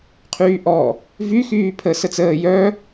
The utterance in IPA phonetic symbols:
qʰ yː ʔ ɔ | v y x yː pʰ ə s ə t͡s əː j œ

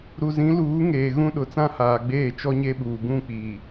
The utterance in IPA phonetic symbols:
ɾ u˨ z ĩ˨˦ l uː˨˦ ŋ eː˨ ɣ ũ˦ ɗ ʊ˨ t͡s ã˦ h aː˨ ɡ͡b eː˦˨ t͡ʃ ɔ˦ ɲ e˦ ɓ uː˨ ɡ ũ˦˨ k͡p iː˨

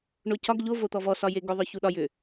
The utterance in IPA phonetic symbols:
ɳ o c ɒ ɡ ʎ o v o t̪ ɔ v ɔ s ɒ j e ɡ ʏ ðˤ œ ç u ɗ ɒ j ʏ

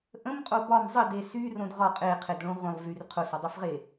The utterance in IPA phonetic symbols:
ʔ ə̃ m qʼ o b ɒ m zˤ ə d e s y r õ d ʁ ɒ qʼ e qʰ e d ɭ õ ʁʷ ə̃ lˠ v y r qʰ ʊ s ɒ dˤ o f ʁ e

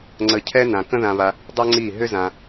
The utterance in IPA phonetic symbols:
ŋ͡ǀ ə˧ cʰ ɛ˦ n ã˧ k ə̃˦ ð ã˧ β a˧ | dˤ ɛ˦ ŋ͡ǀ i˦˨ ɦ ʏ˦ z ã˧

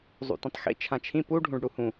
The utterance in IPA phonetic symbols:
zˤ ṵ t ĩ tˤ x ḭ t͡ʃʰ ã t͡ʃʰ ĩ p u ɖʱ ũ ɖ ɽ u h ũ

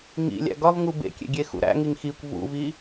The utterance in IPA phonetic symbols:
ŋ ḭ lʲ æ̰ ɡ ɒ v ŋ u b ḛ kʲ ḛ ɡʲ e x ṵ ɾ æ̰ ŋ i ŋ x i kʷ v ṵ v i

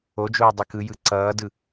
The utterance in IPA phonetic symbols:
o d͡ʒ oː dˤ i k ɯ j ɯ ǀ ʌː d ɯ

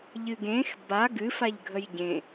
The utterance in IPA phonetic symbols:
ʎ ɨ ɡ ẽ x b a ɡ ɨ f a ʎ ɡʱ ə j ɟ ẽ

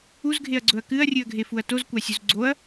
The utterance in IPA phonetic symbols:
u z ɡʱ e ɐ̯ ɡ͡ǀ ɵ ɐ̯ k ɨ ɐ̯ rʲ ɨ ɐ̯ ɡʱ e f u ɐ̯ t o z kʷ a sʲ u z ɡ͡ǀ o ɐ̯

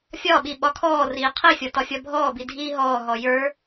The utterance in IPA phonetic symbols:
fʲ ɒ ɓ i ɓ ɒ kʰ ɔː r iː qʰ i fʲ ɒ t ɒ fʲ ɒ bʱ ɔː b i dʱ iː ɦ ɔː ɦ ɔ j ə˞

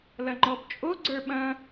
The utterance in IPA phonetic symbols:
l ɐ ŋ͡ǃ ɔ b t͡ʃʼ o ɡ͡ǀ ə˞ ɓ ɐ̃

